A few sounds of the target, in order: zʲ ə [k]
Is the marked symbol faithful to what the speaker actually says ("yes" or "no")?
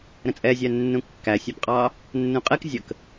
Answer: yes